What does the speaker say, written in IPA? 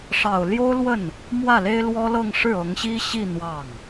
ʂ ɑ˨˩ ʊ̯ l j o˥ ʊ̯ l w ə˥˩ n | m w ä˥˩ l e˥ ɪ̯ l w ɔ˥ l ɤ˥˧ ŋ ʂ ɻ̩˥˩ ɤ˧˥ ŋ ɕ i˥ ɕ i˥˧ n̪ w ɑ˥˩ ŋ

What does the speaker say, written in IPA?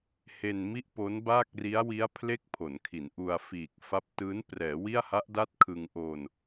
h e˧ n m i˥˩ ʔ p o˦˥ n b aː˥˩ k̚ r i˦˥ a̯ w i˦˥ a̯ pʰ l e˥˩ k̚ pʰ o˩˦ n kʰ i˩˦ n ʔ u˧ a̯ f iː˨˩ k̚ f a˦˥ p̚ t ɯː˦˥ n p r ɛː˩˦ w i˥˩ a̯ h a˦˥ ʔ d a˥˩ t̚ kʰ ɯ˧ ŋ ʔ o˧ n

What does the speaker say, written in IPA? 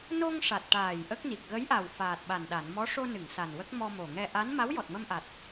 n o˧ ŋ ʂ a˨˩ t̚ ʈ aː˨˩ j ʔ ə˦˥ k̚ n i˨˩ k̚ ɣ ə˧˥ j ʔ a˨˩ w f aː˨˩ t̚ ɓ a˨˩ n ɗ a˨˩˨ n m ɔ˧˥ ʂ o˧ n ɨ˨˩˨ ŋ s a˨˩ n w ə˦˥ k̚ m ɔ˧ m o˨˩ ŋ ɛ˧ ʔ a˧˥ n m a˧˥ w j ɔ˨˩ t̚ m ə˧ m ʔ a˨˩ t̚

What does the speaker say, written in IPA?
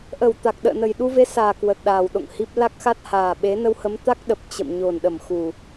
ʔ ə˧˩ w t̪ a˨˩ k̚ ɗ ə̰ː˧˨ n ə˨˩ j ɗ u˧ v e˧ s aː˨˩ k w ə˨˩ t̚ ɗ aː˨˩ w ɗ o̰˧˨ ŋ h i˦˥ p̚ l a˦˥ k̚ x a˦˥ t̚ h aː˨˩ ɓ e˨˦ n ə˧ w h ə˨˦ m t̪ a˦˥ k̚ ɗ ə˨˩ p̚ t͡ɕ ə̰˧˨ m ɲ o˨˩ n ɗ ə˧˩ m x u˨˩

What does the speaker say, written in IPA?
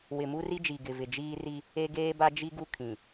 w ɪ˨ m u˦ r i˦ d͡ʒ i˨ ɡ ɪ˨ v ɪ˨ d͡ʒ iː˦ r i˦ | e˦ ɡ eː˦ b a˦ d͡ʒ i˦ ɡ u˦ kʰ ĩ˨

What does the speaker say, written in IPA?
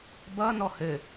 b ʌ n ɔ h ɘ

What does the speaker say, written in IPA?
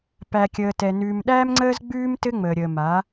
p æ˨ kʲ əː˨ t ɛ˨ n ʉː˨ m ɗ æː˦ m ŋ͡ǀ əː˦ z ɡ͡b ʉː˦ m t ɘ˦ ŋ͡m əː˨ ɾʲ ə˨ m a˨˦

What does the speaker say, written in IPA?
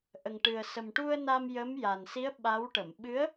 ʔ ə˨˩ ŋ ʈ ɨ˨˩ ə̯ s ə˨˩ m ʈ u˧ ə̯ n a˧ m j ə˧˥ m j a˨˩ n s i˧˥ ə̯ ɓ a˧˥ w ʈ ə˨˩˨ m ɓ ɨ˧˥ ə̯

